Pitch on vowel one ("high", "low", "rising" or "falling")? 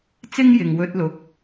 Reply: high